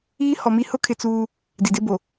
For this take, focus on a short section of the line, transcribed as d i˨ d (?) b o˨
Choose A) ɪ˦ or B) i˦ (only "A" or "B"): A